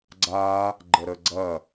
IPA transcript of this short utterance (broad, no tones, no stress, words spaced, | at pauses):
ɡ͡ǀa | ɡ͡ǃəɾəɡ͡ǀɐ